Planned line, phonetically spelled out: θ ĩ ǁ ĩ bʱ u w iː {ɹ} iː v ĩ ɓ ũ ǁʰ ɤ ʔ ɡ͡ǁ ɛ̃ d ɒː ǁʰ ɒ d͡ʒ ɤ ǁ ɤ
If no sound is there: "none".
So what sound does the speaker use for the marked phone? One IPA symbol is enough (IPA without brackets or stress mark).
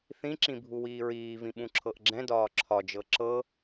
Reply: ɹ